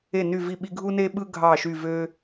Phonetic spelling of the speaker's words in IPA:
e˦˨ny˦˨vi˦˨ɓi˦ ɡʱu˦ne˦ɓɯ˦ ɡʱɑ˦˨ʃy˦˨ vø˦

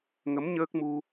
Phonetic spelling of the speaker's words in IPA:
ŋə˨˦m ɲəː˦˥k̚mu˧

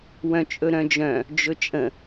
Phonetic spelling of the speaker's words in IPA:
wœ̃t͡ʃʼɵɾœ̃d͡ʒœ̃ | d͡ʒɵt͡ʃʼə̃

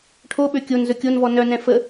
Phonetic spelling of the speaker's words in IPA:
ʈʰoɓø kʲon zɵkʲonvɔ nœnɛ̃ fə

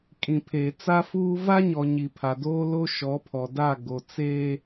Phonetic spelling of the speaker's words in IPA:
kʼĩ˨pʰeː˨t͡sa˦fuː˦ va˦ɲɔ˨ ɲi˨pʰa˨doː˦ lo˦ʃɔ˨˦pʰɔ˨da˦˨ ɡo˨t͡seː˦

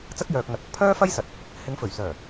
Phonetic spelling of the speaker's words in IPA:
t͡sɐ˥k̚jœː˨k̚ŋɐ˨t̚ɐ˧k̚ pʰœː˥fɐ˥jsɐ˨t̚ | hɪ˨˥ŋfɵ˨˩ɥsœː˨˩

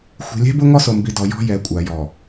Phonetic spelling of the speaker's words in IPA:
xʷi̤˨lʲɛ̤˦bʊ˦ ŋɔ˦so˨mbi˨dɔ˨ jɔ̤˦jɛ˨˦kʷʼa˨ jɔ˨

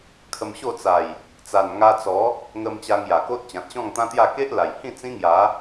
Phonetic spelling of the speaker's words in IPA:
kʰə˧mɕo˥˧t͡sa˨˩j | t͡sa˨˩nŋa˧t͡sɔ˨˦ | ŋə˧m t͡ɕa˧ŋja˨˩ko˦t̚ t͡ɕã˨t̚ɕɔ̃˥˧ŋt̪ã˦t̪ja˥˧ ke˦ʔ la˨˩j hĩ˥˧ t͡sĩ˦ŋja˨˦

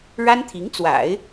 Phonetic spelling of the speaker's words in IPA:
ɻa˥nt̪ʰi˧˥ŋt͡swa̰˨˩˦ɪ̯

